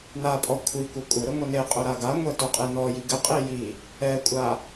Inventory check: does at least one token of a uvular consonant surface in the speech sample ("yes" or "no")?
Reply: yes